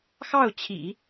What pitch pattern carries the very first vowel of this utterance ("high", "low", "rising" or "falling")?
falling